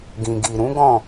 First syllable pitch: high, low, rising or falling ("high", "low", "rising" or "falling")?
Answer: low